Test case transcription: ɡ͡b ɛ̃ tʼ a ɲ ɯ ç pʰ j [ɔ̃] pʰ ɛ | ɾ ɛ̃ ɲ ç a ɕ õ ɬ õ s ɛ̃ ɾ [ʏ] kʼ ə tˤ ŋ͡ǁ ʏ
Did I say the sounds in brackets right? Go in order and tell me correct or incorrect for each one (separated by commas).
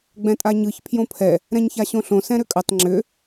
incorrect, correct